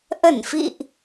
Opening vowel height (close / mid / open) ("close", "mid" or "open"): mid